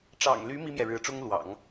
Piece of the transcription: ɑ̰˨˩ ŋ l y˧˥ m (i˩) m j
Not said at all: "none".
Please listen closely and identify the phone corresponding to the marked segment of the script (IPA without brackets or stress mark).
i˥